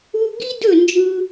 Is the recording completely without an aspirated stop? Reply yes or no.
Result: yes